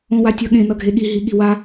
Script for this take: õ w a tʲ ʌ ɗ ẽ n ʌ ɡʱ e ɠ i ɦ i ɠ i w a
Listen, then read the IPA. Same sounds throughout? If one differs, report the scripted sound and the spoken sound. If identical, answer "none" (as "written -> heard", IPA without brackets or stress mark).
ɗ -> ɠ